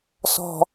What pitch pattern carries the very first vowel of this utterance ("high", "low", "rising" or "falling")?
low